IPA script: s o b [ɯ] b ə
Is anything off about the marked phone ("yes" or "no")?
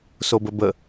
yes